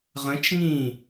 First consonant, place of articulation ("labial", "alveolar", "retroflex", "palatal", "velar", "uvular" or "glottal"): uvular